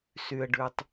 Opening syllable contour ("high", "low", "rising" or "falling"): low